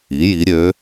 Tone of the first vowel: rising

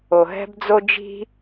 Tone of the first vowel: low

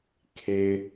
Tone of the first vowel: low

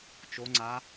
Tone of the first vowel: rising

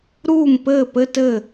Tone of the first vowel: falling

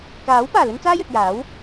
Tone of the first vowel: rising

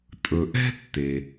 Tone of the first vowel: low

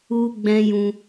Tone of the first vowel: high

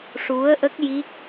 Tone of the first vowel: rising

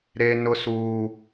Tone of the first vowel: high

